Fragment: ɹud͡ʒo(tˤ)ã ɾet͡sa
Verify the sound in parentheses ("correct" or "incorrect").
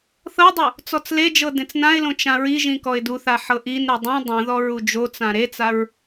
incorrect